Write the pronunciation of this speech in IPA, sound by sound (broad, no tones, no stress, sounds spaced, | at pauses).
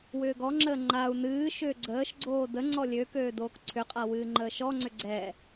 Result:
w ʏː ɡ ɔ ŋ͡ǁ əː ŋ͡ǃ a u̯ n ɨː ʃ ʏː ɡ͡ǀ əː ʃ ɡ͡ǀ oː d ə ŋ͡ǀ ɔ lʲ ø k øː d oː k ǀʰ ʏ qʼ a w ɨː ŋ͡ǃ əː ʃ ɔ ŋ͡ǀ ʏ ɡ͡ǀ ɛ